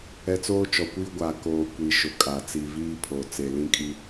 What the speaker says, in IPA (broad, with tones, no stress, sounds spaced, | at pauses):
ɛ˦ t͡s oː˦ t͡ʃ ɔ˨ kʷ iː˦ ɡʷ a˨ k oː˨ kʷ i˨ ʃ ʊ˨ kʼ a˨ t͡s i˨ v iː˦ pʰ o˨ t͡s e˨ l ĩ˦ kʼ i˦